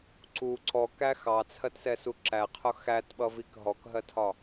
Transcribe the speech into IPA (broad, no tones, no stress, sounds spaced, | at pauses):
ǀ u ǀ ɔ k æ x ɑ t͡sʰ ɜ t s ɛ s u ǁ æ qʰ ʊ x æ t ɓ ʌ v i k ɦ ɔ k ɦ ɜ tʰ ɒ